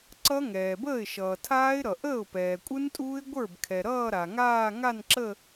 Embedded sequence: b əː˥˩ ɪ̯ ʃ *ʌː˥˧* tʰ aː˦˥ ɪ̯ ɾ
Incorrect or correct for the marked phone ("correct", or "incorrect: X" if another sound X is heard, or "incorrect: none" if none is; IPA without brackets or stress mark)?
incorrect: ʌː˩